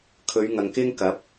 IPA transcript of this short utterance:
kʰɵ˨˧ɥŋɐ˨ŋkɪ˥ŋkɐ˨˥p̚

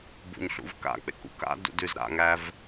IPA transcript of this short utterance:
bṵɲɬṵvka̰k͡pḛk ṵka̰dṵd ʉzɾa̰ŋæv

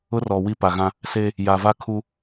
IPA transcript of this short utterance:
ʊ˦rɔ˨ wi˦pa˨ɣã˦ | se˦ | ja˨va˦kʰu˦

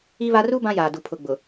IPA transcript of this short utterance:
i˦βa˦ ru˦ bã˦jaː˨du˨ pʰʊ˨ ɡ͡bʊ˨

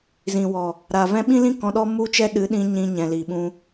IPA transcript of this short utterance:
zĩ˨wɔ˨ | ɾaː˨ vɛ̃˧ɓĩ˦lĩ˦ kɔ̃˧ɗɔ˦ mu˦t͡ʃɛ˦ ɗɨ˨˦ ɗĩ˧ ɲĩ˧ɲɛ̃˨li˨ɓũ˧

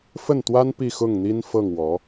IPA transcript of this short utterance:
fə˥˩nt̪wa˥n pi˥˧xʊ˥˩ŋn̪i˥n fɤ˥˩ŋwɔ˧˥

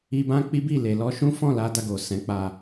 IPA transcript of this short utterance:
i˧bã˦k͡pi˦bi˦˨ le˨lɔ˧ ʃũ˦fɔ̃˦˨la˧ da˧ɡo˨ sɛ̃˨˦k͡pa˧

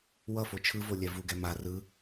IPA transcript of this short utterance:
wʌfo t͡ʃʰɯvolʲɛ vuɡɛ ma rɯ

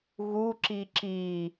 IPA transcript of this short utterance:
ɣu ǁiǁi

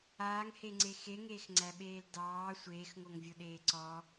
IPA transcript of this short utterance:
aːŋheŋ͡ǀe xeŋeːxŋ͡ǀæɓeːl dɑː sʷeːxŋoŋvʲoɗeː ǀɔ

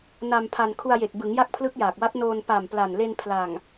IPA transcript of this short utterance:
na˧mpʰa˧n kʰu˧a̯je˨˩k̚bɯ˩˦ŋ ja˥˩k̚pʰlɯ˦˥k̚jaː˨˩k̚wa˦˥t̚ noː˧n pa˨˩m pla˨˩nle˧n pʰla˨˩ŋ

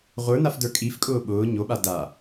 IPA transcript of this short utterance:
ʁʷə˞nafdə˞ kʼifkʼʊː ɓʊː ɲoɓa da

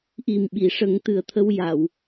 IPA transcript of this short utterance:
ʔi˨˩mɓi˨˩˨ʂə˨˩˦ŋ t̪ɨ˨˩ə̯t̪ʰə˧w ja˨˩˨w

